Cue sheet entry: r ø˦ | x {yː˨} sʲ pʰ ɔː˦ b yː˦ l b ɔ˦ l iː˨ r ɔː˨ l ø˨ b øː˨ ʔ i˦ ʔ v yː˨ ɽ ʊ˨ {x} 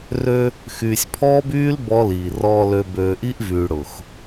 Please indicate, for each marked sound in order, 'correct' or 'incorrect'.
correct, correct

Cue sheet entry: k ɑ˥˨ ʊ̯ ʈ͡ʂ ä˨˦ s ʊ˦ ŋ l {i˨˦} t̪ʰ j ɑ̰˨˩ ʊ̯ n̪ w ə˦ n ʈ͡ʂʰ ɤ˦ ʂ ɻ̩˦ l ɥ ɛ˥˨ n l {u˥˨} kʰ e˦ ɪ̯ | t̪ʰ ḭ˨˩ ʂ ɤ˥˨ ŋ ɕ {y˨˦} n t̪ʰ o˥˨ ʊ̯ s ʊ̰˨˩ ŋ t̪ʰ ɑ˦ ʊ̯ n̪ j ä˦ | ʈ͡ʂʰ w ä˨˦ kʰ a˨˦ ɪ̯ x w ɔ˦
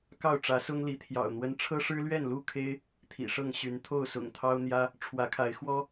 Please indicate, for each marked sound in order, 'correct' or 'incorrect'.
correct, correct, correct

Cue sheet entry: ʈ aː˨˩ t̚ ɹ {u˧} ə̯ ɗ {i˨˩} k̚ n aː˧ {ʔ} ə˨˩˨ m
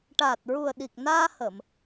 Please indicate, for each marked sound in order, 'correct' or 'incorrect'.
incorrect, correct, incorrect

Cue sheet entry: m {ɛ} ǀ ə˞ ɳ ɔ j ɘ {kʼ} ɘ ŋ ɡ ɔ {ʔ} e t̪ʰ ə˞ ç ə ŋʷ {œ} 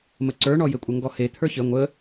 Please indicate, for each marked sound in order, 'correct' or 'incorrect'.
incorrect, incorrect, incorrect, incorrect

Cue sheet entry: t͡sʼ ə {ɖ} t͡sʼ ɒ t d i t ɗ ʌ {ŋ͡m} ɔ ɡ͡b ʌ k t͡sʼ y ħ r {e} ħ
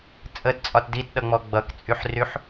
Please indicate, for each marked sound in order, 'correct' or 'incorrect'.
incorrect, correct, incorrect

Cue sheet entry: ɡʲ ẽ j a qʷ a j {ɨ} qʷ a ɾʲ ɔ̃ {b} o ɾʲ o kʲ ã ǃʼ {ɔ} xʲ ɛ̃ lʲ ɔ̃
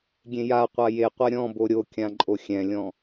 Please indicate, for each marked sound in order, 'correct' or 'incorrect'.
incorrect, correct, incorrect

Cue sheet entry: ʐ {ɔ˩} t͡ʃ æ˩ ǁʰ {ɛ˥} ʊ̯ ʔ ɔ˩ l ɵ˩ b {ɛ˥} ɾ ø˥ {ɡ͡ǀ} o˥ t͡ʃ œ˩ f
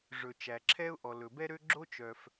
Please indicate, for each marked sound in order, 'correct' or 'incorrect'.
incorrect, correct, correct, incorrect

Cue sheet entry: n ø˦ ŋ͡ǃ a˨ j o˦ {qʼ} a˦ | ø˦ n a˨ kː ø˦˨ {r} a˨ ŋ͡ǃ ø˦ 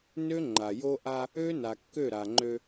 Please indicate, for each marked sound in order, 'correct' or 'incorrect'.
incorrect, incorrect

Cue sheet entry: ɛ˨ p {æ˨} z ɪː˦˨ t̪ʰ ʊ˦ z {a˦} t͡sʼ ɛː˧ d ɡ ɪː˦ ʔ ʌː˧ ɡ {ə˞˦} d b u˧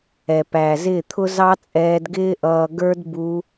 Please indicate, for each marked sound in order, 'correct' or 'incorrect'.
correct, incorrect, correct

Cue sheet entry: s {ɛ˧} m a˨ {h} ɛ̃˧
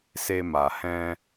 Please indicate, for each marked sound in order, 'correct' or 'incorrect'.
incorrect, correct

